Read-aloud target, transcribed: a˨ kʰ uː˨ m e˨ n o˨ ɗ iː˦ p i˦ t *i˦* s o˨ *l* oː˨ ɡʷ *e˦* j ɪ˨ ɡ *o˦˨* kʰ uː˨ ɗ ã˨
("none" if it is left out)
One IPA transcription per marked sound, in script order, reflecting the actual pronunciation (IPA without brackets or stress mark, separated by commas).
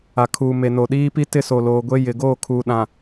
ɪ˦, l, e˦, o˦˨